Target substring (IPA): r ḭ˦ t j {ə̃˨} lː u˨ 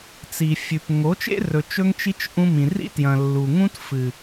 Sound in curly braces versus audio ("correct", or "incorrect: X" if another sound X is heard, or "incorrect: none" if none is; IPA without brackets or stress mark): incorrect: ɐ̃˨